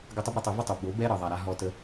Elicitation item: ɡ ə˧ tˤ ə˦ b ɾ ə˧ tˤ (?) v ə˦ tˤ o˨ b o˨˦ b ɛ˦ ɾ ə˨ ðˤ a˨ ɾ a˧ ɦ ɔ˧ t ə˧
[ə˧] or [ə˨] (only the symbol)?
ə˧